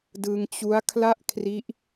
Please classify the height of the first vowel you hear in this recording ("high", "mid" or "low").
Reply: high